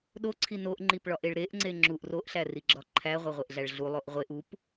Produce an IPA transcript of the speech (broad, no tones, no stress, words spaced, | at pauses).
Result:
ɗoǀʰi noʔŋ͡ǃipɭɒʔeɭ ɾeʔŋ͡ǀe ŋ͡ǁuʔ roʔɬæriɡ͡ǁɒ ǃʰæʁʷeʁʷeʔɮæɭ ɮulˠoʔ ʁʷeʔ up